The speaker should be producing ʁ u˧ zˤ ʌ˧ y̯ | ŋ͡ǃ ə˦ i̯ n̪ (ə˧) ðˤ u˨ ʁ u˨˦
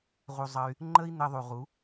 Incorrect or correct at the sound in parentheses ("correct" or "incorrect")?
correct